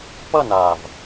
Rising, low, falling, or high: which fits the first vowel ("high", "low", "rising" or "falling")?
falling